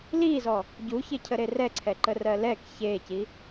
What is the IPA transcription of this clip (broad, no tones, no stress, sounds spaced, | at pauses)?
l i z ɔ | ɟ u ç e cʰ ə ɾ e r ɛ ǀʰ ɛ ǃ ə r ɜ l ɛ k ç e c i